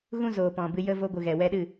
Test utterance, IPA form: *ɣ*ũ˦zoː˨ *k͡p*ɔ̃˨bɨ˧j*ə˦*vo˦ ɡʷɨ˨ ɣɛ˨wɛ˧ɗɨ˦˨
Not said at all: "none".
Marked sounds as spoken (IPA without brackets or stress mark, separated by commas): ɣ, p, ə˦